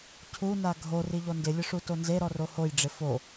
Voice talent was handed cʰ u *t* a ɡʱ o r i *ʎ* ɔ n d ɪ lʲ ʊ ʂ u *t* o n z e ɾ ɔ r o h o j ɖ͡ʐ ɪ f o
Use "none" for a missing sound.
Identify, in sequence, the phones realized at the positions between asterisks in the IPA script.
n, ʎ, t

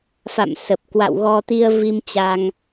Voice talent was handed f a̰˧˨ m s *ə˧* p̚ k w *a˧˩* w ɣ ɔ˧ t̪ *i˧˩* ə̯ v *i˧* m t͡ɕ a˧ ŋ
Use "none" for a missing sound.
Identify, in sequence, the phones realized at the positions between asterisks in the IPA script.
ə˨˩, a̰˧˨, i˧, i˧

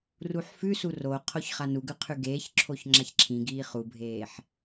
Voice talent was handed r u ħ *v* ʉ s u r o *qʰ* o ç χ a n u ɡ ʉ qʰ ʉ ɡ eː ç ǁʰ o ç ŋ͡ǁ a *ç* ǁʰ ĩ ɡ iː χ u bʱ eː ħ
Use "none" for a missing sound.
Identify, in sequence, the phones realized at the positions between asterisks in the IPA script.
f, qʰ, ç

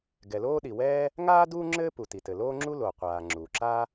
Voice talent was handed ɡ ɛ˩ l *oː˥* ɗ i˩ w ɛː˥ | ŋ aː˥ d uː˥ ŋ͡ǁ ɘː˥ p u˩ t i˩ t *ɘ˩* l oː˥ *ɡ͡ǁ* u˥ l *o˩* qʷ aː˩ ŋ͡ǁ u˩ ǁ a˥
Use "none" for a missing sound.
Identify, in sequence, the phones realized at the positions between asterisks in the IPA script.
oː˥, ɘ˩, ŋ͡ǁ, o˩

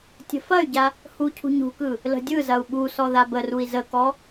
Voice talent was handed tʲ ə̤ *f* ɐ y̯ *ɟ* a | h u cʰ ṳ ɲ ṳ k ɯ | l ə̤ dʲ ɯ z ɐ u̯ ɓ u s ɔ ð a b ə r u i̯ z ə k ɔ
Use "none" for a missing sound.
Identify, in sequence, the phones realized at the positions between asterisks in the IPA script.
f, ɟ

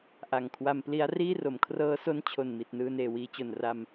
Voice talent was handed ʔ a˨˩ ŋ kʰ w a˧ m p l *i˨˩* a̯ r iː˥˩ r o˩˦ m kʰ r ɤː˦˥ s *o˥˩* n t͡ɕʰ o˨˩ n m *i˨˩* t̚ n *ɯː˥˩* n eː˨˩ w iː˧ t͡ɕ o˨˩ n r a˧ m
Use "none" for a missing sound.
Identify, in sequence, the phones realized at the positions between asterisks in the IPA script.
i˦˥, o˦˥, i˨˩, ɯː˧

